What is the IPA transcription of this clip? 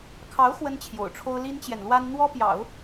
kʰɑ˧˥ʊ̯ xwə˥nt͡ɕʰjo̰˨˩ʊ̯ʈ͡ʂʰo˥ʊ̯ li˥nt͡ɕjɛ˨nlwa˥n n̪wɔ˥pjɑ̰˨˩˦ʊ̯

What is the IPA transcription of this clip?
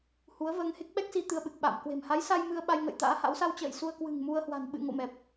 hu˨˦ə̯vəː˧ŋ he˦˥k̚ɓɛ˦˥k̚si˧ t̪ɨ˧ə̯ɓɨ˨˩k̚ɓa̰ː˧˨m kwe̤˨˩m ha˨˦jsa˧j mɨ˧ə̯ ɓa˧jŋə̰˧˨jt̪a̰ː˧˥ha̰˧˥w sa˧wt͡ɕə̰ː˧˨j su˧ə̯kwɨ̤˨˩ŋmu˧ə̯hwa̤˨˩n ɓɨ̰˧˨ŋo̰˧˨ mɛ˨˩p̚

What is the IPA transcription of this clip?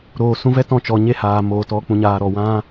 ɾoː˨sũ˧vɛ˦ tɔ̃˦˨t͡ʃɔ˨ɲe˦haː˨ moː˨tɔ˧ k͡pũ˧ɲaː˧ɾɔ˨ wã˦

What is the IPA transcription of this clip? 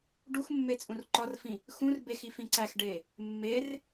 ɖuxmːe t͡sʼũrǃɒrfĩ | xũr bexi fĩǀæxɖe | mːer

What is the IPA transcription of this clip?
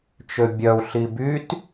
t͡ʃøbʲœu̯ ɬibyt

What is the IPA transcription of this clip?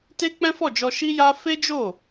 te˦k͡pɛ̃˦fɔ˦˨d͡ʒɔ˧ ʃi˦ja˦ fe˦d͡ʒo˦˨

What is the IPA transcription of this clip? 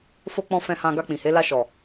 fo˧k͡pɔ̃˧ fɛ̃˧hã˧ ɡa˧k͡pĩ˨he˨˦ la˧ʃɔ˨

